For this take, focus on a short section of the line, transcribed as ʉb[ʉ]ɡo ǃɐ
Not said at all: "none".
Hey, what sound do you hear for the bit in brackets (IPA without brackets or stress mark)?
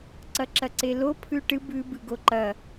ɨ